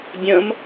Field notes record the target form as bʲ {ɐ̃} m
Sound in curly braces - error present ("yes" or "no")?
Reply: no